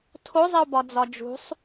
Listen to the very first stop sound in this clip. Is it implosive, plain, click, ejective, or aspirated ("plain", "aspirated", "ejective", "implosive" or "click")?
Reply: aspirated